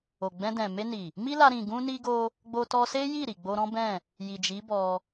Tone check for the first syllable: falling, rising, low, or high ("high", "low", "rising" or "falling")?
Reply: low